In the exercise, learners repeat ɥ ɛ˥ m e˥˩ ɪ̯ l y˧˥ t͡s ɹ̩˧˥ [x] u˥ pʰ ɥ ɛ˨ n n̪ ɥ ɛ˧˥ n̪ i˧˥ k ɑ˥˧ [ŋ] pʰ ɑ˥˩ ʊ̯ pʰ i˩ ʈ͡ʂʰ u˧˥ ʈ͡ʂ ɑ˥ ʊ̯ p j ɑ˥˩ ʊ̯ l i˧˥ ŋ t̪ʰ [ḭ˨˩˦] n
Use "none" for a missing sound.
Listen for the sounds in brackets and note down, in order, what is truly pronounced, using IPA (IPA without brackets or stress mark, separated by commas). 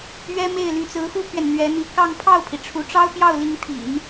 x, ŋ, ḭ˨˩˦